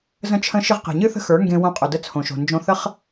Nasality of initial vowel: nasal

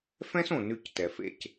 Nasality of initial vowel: nasal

